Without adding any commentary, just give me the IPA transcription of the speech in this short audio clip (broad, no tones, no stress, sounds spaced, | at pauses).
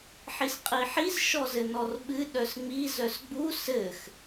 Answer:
ħ i s qʼ i ħ i z ʃ ɔ z ɘ n ɔ r ɓ ɨ ɗ œ s ŋ͡m i z œ s ɡ͡b u s ɘ x